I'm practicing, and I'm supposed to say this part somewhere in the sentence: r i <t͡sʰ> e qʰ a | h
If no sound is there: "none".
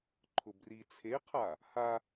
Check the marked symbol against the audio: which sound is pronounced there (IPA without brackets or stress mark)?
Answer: t͡sʰ